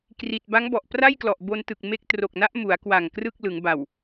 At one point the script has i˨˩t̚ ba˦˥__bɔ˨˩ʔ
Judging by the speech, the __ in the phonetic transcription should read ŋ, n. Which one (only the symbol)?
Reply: ŋ